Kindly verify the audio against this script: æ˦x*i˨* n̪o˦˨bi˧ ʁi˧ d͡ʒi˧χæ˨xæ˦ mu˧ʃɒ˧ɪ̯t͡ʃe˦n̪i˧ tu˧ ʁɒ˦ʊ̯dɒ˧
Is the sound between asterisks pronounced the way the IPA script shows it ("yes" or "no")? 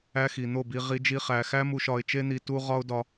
yes